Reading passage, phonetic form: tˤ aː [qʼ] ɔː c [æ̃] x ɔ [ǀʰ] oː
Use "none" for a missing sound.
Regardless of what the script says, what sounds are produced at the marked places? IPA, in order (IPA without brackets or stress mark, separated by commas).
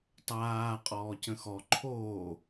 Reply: qʼ, ə̃, ǃʰ